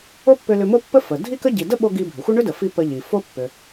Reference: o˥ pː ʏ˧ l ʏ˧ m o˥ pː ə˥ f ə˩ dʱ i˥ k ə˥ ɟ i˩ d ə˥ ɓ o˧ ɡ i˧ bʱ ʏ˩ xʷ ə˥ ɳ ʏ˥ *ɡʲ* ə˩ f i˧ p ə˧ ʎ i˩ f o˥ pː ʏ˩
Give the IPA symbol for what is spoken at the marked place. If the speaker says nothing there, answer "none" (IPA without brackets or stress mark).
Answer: d